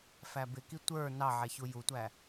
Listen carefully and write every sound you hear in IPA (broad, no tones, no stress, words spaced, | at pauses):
fæbɪki tʷə˞ nɑʕɛ çujutʷæ